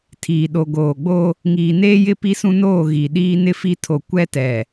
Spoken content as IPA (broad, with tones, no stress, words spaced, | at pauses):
tʰiː˨ɗo˨ ɡoː˨ɡ͡bo˦ | ŋiː˨neː˦jɪ˦ pi˦sũ˦noː˦˨ ɣi˨ɗiː˦ nɪ˦fi˦tʰo˨ kʷɛ˦tɛ˨